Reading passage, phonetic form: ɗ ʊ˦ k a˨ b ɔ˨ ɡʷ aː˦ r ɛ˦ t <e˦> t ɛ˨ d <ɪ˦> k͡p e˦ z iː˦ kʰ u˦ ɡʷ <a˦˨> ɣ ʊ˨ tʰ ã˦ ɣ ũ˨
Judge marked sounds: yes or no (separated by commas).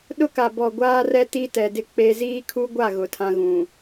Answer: no, yes, yes